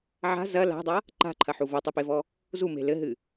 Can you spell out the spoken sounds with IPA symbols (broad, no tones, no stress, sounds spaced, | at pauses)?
ʕ a̤ z ɐ l a̤ dˤ a | ǃ a̤ ǃʰ ɐ ħ u v o tˤ ɨ p e v ɔ | z u m e̤ l ɘ ɦ ɨ